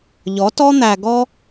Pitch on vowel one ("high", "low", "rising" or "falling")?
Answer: rising